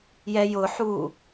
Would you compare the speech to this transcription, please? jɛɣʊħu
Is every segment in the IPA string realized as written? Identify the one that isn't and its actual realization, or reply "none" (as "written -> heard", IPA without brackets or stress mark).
ɣ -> j